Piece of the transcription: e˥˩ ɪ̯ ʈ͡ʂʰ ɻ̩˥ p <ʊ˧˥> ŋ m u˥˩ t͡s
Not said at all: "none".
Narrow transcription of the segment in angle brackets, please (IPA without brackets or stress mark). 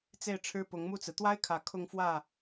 ʊ˧˥